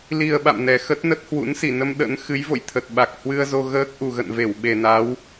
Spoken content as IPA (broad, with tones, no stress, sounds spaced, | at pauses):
l i˨˩ ə̯ ɓ a̰˧˨ m n ɛ˨˩ x ə˦˥ t̚ n ə˦˥ t̚ h w ṵ˧˥ n s i˧˩ n ə˧ m ɗ ə̰˧˥ n x ɨ˨˦ j v o̰˧˨ j t̪ʰ ə˨˩ t̚ ɓ a˨˩ k̚ h w ɨ˧ ə̯ z o˧ ɣ əː˦˥ k̚ ʔ u˨˩ ɣ ə̰˧˨ n v e˧˩ w ɓ e˨˩ n a˨˦ w